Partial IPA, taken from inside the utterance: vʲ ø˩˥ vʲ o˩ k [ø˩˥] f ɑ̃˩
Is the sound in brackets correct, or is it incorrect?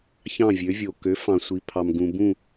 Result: correct